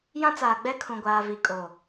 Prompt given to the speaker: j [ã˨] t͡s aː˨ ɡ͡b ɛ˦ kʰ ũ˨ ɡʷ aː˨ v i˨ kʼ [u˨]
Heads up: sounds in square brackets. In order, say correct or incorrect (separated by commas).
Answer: incorrect, incorrect